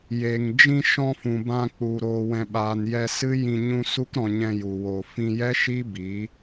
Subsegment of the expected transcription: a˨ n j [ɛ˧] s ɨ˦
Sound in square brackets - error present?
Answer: no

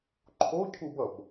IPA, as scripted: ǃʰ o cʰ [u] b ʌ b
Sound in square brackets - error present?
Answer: no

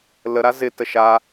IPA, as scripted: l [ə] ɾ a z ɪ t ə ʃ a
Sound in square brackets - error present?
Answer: no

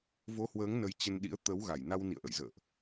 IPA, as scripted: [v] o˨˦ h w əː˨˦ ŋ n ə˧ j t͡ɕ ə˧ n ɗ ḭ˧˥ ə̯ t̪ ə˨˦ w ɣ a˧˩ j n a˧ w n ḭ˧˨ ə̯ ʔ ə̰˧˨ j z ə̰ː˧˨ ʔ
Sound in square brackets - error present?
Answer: no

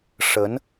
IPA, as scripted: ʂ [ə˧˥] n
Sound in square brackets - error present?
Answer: no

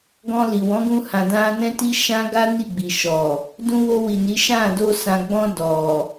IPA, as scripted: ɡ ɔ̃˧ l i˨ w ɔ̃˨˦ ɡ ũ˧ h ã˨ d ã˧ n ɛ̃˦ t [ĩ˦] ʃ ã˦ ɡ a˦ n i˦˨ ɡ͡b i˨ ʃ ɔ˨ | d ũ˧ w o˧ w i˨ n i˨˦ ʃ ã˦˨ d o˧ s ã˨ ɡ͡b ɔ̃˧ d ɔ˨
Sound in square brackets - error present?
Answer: yes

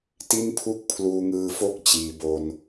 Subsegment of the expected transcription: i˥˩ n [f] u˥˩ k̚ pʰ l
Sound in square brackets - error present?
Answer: yes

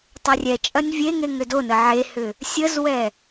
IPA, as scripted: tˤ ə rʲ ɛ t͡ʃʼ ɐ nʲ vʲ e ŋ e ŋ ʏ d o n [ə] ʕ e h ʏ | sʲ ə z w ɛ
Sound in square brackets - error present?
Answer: no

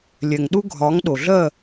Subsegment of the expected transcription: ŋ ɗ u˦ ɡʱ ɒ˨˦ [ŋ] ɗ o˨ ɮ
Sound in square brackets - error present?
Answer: no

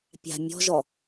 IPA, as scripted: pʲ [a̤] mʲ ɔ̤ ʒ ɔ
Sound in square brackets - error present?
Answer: no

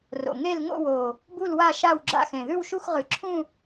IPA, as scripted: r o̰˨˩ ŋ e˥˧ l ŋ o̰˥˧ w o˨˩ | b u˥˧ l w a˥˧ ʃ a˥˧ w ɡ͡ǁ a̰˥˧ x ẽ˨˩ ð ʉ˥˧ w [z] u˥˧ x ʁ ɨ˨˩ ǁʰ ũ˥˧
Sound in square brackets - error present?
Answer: yes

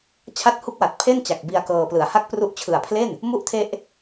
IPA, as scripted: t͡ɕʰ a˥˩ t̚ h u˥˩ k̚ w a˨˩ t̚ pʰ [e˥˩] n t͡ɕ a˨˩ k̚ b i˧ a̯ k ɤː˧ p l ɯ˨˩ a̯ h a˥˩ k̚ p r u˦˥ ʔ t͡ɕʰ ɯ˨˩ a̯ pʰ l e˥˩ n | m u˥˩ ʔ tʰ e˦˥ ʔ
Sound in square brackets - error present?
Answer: no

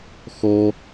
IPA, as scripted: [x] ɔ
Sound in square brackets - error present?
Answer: no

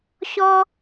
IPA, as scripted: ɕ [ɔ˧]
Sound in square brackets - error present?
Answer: no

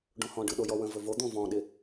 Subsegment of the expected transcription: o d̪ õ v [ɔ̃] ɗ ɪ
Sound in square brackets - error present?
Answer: no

